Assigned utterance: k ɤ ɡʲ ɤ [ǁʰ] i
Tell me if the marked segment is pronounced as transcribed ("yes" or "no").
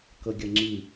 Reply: no